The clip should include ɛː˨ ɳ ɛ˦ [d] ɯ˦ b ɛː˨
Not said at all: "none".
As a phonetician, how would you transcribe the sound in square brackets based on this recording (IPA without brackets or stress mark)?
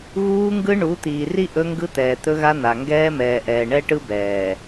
ʈ